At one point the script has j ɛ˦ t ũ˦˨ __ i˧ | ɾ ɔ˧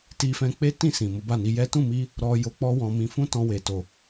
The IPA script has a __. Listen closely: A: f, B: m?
B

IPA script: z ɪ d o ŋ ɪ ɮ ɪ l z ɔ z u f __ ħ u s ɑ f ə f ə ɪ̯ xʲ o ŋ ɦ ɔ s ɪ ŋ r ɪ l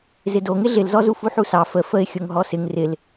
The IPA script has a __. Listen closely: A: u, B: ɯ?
A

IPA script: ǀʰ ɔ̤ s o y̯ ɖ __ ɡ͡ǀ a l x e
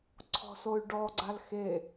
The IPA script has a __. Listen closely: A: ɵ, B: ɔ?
B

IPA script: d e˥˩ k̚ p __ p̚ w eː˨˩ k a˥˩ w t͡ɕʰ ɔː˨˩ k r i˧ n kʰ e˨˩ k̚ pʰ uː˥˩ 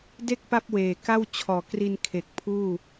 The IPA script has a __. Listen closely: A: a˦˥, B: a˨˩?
A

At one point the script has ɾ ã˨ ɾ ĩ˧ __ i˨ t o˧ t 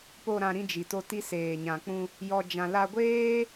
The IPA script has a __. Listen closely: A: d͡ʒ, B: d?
A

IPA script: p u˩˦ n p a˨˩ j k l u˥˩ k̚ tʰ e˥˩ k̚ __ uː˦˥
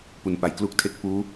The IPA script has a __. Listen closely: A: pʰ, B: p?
B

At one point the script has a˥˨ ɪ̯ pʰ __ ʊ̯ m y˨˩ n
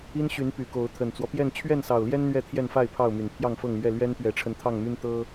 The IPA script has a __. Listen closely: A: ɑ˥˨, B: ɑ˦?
A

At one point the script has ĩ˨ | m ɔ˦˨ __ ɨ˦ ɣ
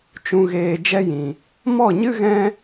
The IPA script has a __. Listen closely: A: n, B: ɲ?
B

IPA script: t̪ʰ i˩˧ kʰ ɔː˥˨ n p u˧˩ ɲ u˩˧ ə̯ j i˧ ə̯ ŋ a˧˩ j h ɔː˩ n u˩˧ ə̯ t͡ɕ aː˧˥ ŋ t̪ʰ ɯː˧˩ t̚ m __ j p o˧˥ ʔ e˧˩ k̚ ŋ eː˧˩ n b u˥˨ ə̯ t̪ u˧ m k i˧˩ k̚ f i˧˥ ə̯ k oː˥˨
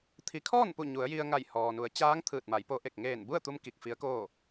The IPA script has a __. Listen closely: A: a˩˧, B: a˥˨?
A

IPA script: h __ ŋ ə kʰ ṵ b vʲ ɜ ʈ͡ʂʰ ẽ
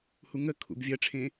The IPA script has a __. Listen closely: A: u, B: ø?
A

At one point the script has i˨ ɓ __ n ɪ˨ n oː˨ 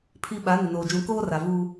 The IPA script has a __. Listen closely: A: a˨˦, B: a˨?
A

